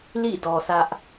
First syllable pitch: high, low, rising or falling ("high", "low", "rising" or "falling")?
falling